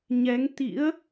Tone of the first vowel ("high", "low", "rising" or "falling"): rising